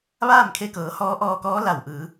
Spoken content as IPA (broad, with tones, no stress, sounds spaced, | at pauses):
ʋ aː˥˨ m kʰ e˧˥ k ɤː˩˧ h ɔː˧˥ ʔ ɔː˧ k ɔː˧˥ l a˧˩ w ʔ ɯː˩˧